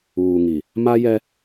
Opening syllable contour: low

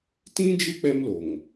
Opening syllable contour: high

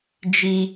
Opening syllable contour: high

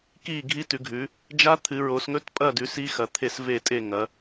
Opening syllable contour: falling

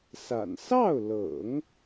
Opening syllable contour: low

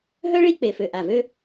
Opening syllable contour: high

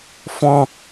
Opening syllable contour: high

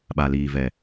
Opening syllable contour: low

